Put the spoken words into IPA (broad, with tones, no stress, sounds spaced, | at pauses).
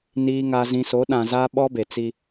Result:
n iː˨ ŋ a˨ z ĩ˨ s o˨˦ ɗ ã˨ z a˦ ɓ ɔ˦ b e˨ t͡s i˦